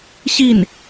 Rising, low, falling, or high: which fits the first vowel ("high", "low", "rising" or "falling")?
falling